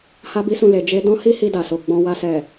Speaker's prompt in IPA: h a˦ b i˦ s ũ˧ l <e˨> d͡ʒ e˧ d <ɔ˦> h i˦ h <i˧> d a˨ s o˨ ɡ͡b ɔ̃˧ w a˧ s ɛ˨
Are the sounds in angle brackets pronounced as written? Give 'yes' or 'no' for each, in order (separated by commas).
yes, no, yes